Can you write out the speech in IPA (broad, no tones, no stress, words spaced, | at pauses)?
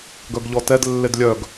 ɡœɡʎɔtɛd lːedlʲœɡ